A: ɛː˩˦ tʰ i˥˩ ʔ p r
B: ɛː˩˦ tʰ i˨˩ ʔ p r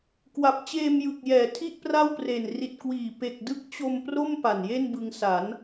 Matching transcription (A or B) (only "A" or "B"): A